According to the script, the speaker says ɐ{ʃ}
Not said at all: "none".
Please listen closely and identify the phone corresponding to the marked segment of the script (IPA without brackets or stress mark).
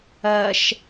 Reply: ʃ